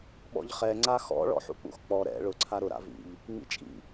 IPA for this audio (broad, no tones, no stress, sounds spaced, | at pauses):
ɓ ɔ̰ ʎ χ ɛ ŋ͡ǀ a x ɔ̰ ɭ ɔ̰ ħ ṵ k͡p ṵ x k͡p ɔ ɾ ɛ̰ ɭ ʊ ǀʰ a ɾ ʊ ɾ a̰ v ḭ ʎ | ŋ͡m ḭ t͡ʃʼ ḭ